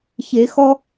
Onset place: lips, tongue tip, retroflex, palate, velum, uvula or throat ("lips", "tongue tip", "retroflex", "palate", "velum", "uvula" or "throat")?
palate